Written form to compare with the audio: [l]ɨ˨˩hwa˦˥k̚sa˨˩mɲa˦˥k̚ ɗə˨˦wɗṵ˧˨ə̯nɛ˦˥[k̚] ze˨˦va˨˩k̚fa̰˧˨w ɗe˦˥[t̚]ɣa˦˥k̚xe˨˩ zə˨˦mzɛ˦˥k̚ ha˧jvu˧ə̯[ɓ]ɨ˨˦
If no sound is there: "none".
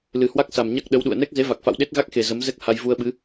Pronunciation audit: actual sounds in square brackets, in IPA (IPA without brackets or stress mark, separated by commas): l, k̚, t̚, ɓ